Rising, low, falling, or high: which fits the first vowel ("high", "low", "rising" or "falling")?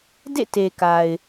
falling